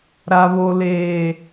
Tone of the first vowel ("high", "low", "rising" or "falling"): low